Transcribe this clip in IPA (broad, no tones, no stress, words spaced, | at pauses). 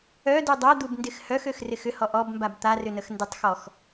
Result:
œdu dˤœd̪ubndɪx hœxøxrɪx ʏhɔ ʔɔbmbab t̪arʏnəx ndɪtˤxɔx